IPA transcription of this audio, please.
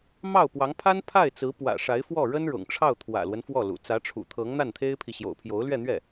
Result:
m ɑ˥˩ ʊ̯ p w ɑ˧˥ ŋ pʰ a˥ n pʰ a˥˩ ɪ̯ t͡s ɹ̩˧˥ p w ä̰˨˩ ʂ a˧˥ ɪ̯ f w ɔ˥˩ ɻ ə˥ n ɻ ʊ̰˨˩ ŋ ʈ͡ʂʰ ɑ˥˩ ʊ̯ t̪ʰ w ä̰˨˩ l w ə˦ n f w ɔ˥˩ l ṵ˨˩ t͡s ä˧˥ ʈ͡ʂʰ ṵ˨˩ t̪ʰ ɤ˧˥ ŋ n̪ a˥˩ n t̪ʰ e˥ ɪ̯ pʰ i˨ ɕ j o̰˨˩ ʊ̯ pʰ j o˧˥ ʊ̯ l ɥ ɛ˥˧ n̪ ɥ ɛ˥˩

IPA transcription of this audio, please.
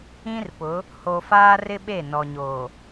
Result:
ĩ˦ r p ʊ˨˦ | h o˨ f aː˦ r ɪ˦ ɓ e˦˨ n ɔ˨ ɲ oː˨

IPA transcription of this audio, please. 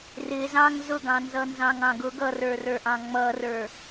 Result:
r ɪ z ɑ̃ ŋ z ʊ ɡ ɑ̃ n z ʌ n z ɑ̃ ŋ ɑ̃ ɡ ʊ ɡ ʌ r ə˞ r ə˞ ʔ ɑ̃ ŋ͡m ʌ r ə˞

